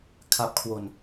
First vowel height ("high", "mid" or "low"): low